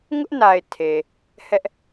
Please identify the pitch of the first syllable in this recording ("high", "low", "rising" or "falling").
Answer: high